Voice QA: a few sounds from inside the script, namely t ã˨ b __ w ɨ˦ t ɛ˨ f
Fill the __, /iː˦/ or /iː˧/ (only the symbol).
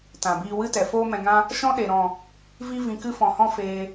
iː˧